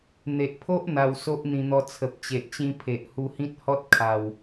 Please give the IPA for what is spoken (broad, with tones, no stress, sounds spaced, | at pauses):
n̪ e˨ ʔ pʰ o˦ ʔ n̪ a˧ w s o˦ ʔ n̪ ĩ˧ n̪ ɔ˧ t͡sʰ ə˨ p̚ t͡ɕ e˨ ʔ t͡ɕ ĩ˧ pʰ e˨ ʔ h u˧ h ĩ˦ t̚ h ɔ˦ t̚ kʰ a˨˩ w